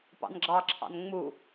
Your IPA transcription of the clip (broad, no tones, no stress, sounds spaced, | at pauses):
p ɑ̰ n ɡ͡ǁ ɑ ǁʰ ɑ̰ n ŋ͡m u